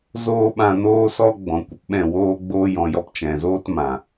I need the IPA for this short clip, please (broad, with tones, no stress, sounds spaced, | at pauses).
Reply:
z oː˧ ɓ ã˧ n oː˦ s ɔ˦ ɡ͡b ɔ̃˨ kʷ ə˨ p ɓ ɛ̃˦˨ w oː˦ ɡ͡b oː˦ j ɔ̃˧ j ɔ˧ p t͡ʃ ɛ̃˨ z oː˦ t m ã˨